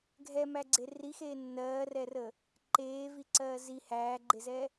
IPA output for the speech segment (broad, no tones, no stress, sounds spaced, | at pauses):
ɡʱ ɛ m æ ɡ͡ǀ e r i x eː nː ɜː r ɛ r ə | ǃ eː v i ǀ ɜː z i h æː ɡ͡ǃ e z ɛ